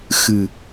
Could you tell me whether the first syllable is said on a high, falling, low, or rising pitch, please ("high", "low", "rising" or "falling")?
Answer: low